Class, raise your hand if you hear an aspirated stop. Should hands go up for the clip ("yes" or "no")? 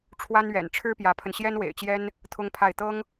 yes